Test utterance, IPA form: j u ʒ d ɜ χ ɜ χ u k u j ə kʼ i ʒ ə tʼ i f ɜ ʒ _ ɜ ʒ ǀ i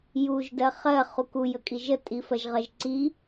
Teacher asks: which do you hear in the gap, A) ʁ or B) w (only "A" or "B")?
A